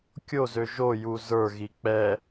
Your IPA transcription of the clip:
kʲ o z ø ʒ o j u z ə˞ ɣ i k͡p ɛ

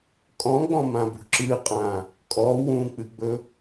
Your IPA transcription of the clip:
kʼ ɔ̃ ɡ͡b ɔ̃ m ã b ṳ ǁ ɨ qʼ ã | kʼ ɔ w ũ k͡p ɨ ɡ͡b ɵ

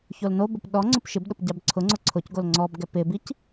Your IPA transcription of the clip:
ç o l n o b ʊ p ɗ ɔ ŋ͡ǀ ʊ p ʃ ɪ b ɗ ʊ p ɟ a b ǀʰ ʊ ŋ͡ǀ ʊ ǀʰ ʊ c ɡ o l ŋ͡ǀ ɔ b ɡ ɛ p ɪ b i c

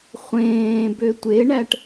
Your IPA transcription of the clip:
χʷ ẽː b ø tʷ e ɳ æ ʈ

